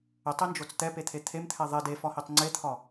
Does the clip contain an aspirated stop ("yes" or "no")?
yes